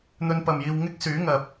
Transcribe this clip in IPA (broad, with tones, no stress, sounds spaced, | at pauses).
n̪ ɵ˧ n p ɐ˨ m j iː˧ w ŋ ɪ˥ k̚ s yː˨˥ ŋ ɐ˨ p̚